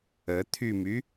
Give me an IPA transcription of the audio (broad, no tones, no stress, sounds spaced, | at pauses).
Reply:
ə t̪ʰ y m y